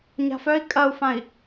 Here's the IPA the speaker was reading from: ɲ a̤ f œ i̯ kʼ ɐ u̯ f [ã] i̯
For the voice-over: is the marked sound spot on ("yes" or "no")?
yes